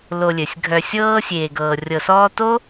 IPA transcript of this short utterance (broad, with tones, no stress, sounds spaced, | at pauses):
l o˨ lʲ ɘ˩ sʲ ɡʱ œ˨ sʲ ɤː˦ sʲ eː˨ ɡ ɤː˨ rʲ ɤ˨ s ɔː˦ t o˥